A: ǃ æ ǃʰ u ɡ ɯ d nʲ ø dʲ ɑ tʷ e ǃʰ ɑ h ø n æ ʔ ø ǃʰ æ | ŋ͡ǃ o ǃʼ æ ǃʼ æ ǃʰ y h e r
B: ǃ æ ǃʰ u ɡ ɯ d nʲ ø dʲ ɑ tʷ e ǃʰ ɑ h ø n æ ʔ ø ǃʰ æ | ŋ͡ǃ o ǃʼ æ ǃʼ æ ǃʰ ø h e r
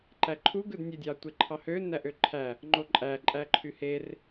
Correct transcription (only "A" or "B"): A